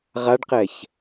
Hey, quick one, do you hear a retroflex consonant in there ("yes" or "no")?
yes